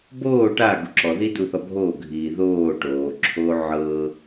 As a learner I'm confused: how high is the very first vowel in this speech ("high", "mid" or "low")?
mid